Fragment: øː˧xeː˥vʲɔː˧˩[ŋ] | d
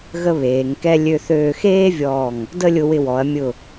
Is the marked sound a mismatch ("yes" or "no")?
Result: no